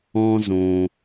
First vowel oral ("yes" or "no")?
no